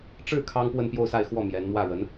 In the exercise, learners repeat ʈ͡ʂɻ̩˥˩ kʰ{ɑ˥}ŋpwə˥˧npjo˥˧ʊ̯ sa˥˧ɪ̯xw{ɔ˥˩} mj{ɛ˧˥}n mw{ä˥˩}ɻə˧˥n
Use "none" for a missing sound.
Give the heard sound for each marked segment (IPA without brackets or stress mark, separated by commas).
ɑ˥, ɔ˥˩, ɛ˧˥, ä˥˩